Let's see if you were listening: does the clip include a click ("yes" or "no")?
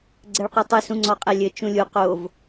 yes